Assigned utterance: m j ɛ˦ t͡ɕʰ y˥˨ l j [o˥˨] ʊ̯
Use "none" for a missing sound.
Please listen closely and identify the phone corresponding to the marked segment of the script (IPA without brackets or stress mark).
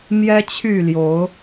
o˨˦